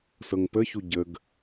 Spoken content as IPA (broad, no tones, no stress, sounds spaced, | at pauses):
s ɤ ŋ p ə ç u ɟ ə ɡ